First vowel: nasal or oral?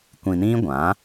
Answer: nasal